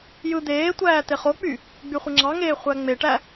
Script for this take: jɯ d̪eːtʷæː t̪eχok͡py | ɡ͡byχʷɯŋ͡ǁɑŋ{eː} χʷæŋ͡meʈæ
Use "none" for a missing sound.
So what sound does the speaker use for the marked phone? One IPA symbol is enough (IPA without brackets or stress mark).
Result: eː